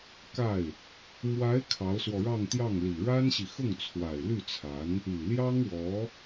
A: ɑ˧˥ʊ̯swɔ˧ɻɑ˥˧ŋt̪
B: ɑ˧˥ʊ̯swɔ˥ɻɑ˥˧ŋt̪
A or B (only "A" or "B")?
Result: A